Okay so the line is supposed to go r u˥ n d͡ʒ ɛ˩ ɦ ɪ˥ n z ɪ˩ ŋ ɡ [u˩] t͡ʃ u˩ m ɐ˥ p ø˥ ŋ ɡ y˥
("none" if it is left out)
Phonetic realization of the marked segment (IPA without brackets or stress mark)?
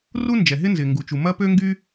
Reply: u˩